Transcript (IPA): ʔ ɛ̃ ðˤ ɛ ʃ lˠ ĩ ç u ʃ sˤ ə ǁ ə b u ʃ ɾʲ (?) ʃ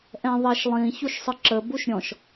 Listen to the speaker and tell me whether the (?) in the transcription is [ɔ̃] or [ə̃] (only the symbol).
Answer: ɔ̃